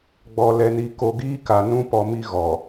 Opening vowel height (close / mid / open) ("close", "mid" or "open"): mid